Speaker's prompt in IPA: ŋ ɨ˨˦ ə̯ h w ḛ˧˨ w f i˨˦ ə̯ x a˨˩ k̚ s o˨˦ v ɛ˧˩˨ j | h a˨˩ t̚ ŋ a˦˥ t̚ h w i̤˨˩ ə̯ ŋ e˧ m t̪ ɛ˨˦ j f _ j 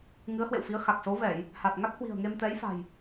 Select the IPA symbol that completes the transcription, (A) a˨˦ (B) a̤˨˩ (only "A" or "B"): B